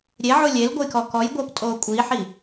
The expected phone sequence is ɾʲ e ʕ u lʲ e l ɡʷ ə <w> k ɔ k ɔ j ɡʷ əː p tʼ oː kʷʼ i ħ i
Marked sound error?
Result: yes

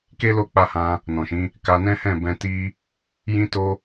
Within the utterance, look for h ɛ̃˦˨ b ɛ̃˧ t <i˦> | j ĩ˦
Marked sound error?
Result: no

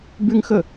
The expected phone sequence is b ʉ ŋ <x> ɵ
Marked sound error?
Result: no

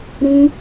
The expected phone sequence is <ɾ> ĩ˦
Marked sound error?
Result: no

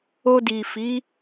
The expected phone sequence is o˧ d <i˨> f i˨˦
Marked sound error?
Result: no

